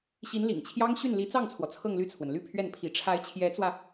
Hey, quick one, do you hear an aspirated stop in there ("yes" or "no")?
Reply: yes